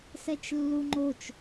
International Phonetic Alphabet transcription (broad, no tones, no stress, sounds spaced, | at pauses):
s ɛ t͡ʃ lː u ŋ͡ǃ o t͡ʃ